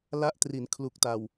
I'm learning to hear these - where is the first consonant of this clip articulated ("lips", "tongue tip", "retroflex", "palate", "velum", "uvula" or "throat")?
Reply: tongue tip